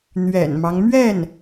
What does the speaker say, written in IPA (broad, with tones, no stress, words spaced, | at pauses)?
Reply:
n̪ɥɛ̰˨˩nmɑ˦ŋ mɥɛ˥˩n